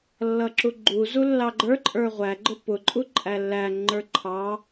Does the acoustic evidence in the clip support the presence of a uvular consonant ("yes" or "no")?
yes